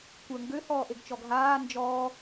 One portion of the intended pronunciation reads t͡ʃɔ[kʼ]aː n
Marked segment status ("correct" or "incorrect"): incorrect